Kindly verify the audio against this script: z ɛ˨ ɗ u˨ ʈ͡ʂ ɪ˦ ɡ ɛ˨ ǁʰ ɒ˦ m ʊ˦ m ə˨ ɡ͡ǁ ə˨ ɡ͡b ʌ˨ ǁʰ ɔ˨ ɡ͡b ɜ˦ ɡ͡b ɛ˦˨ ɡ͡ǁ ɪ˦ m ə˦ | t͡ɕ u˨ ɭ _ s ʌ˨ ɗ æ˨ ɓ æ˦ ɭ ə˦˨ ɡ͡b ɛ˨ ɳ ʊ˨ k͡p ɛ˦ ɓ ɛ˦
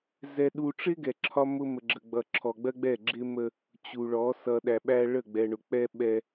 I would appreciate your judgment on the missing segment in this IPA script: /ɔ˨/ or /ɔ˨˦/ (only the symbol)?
ɔ˨˦